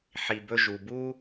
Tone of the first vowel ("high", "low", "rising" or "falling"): low